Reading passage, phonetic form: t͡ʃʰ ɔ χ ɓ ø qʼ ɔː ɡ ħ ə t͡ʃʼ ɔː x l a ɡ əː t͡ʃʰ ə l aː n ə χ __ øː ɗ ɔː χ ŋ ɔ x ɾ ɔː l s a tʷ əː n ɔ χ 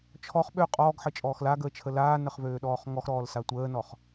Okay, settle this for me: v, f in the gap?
v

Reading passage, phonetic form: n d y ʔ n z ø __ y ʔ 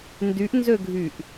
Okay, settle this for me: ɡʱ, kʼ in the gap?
ɡʱ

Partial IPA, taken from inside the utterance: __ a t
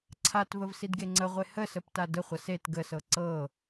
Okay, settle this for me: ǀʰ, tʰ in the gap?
ǀʰ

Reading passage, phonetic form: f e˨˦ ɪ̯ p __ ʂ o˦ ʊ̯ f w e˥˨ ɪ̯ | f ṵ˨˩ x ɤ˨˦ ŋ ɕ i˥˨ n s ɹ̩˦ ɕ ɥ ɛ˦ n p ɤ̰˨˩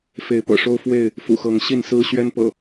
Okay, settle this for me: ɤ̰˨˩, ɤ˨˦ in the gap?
ɤ̰˨˩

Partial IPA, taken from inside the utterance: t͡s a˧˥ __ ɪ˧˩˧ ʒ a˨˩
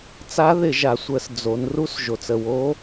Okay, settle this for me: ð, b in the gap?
ð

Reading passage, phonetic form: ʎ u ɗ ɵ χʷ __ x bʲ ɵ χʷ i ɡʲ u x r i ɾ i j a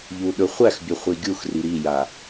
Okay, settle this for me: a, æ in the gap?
æ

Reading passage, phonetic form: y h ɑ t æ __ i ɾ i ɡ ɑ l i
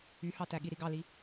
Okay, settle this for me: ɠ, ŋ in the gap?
ɠ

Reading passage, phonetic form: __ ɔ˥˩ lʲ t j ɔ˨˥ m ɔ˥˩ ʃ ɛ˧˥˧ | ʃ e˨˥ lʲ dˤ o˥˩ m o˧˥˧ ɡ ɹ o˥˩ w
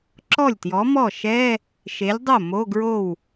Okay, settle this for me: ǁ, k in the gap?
ǁ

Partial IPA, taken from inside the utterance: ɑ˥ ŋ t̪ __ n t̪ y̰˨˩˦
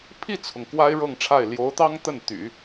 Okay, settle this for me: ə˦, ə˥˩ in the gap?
ə˥˩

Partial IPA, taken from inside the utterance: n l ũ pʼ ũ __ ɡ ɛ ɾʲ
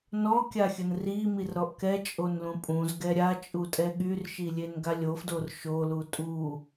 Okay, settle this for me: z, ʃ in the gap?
z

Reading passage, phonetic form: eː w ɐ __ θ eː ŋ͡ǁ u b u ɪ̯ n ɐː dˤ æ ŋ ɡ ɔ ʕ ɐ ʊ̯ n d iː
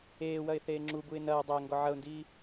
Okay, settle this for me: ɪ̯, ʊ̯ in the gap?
ɪ̯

